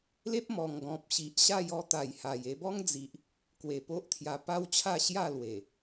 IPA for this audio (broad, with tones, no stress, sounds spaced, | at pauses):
l e˦ p̚ m ɔ˨˩ ŋ ɡ ɔ̃˨ p̚ ɕ i˨ ʔ ɕ a˥˧ j ɔ˧ t̪ a˨˩ j h a˨˩ j e˧ b ɔ˦ ŋ d͡z i˨ ʔ | k w e˨˩ p o˦ ʔ t̪ʰ j a˧ p a˦ w t͡ɕʰ a˥˧ ɕ j a˥˧ l w e˨˩